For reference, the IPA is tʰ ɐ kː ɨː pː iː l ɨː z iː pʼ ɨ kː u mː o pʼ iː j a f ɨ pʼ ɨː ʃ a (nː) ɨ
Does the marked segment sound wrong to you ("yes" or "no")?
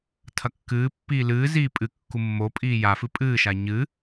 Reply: yes